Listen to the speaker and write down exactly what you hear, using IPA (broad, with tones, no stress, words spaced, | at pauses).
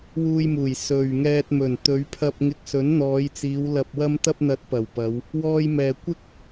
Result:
wuː˧jmuː˨˩j sɵ˨ɥŋɛː˧t̚mɵ˨˩n t̪ɵ˨˧ɥpʰɐ˧p̚ŋɪ˧k̚ sɵ˨˥nn̪ɔː˨˧jt͡siː˨˧w lɐ˨p̚wɐ˧mt̪ɐ˧p̚n̪ɐ˨˥t̚ pɐ˨˩wpɐ˨˧w | wɔː˧jmɛː˨kʷɪ˥k̚